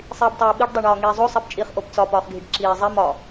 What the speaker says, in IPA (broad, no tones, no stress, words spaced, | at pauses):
sˤiːbtˤiːɓiɖ dˤeɳɒːŋiːzˤo sˤebt͡ʃʼiχ ʔopt͡sɒ pɒːχɡʱiɖǁiː zˤi mɒ